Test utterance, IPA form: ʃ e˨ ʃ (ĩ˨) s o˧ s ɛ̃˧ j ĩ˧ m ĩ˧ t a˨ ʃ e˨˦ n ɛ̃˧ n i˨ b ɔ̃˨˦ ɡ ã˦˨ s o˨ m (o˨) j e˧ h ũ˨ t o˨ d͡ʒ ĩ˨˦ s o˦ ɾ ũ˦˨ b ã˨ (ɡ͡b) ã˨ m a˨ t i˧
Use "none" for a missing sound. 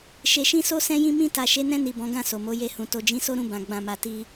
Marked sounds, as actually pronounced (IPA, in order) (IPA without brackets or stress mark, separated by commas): ĩ˧, o˨˦, ɡ͡b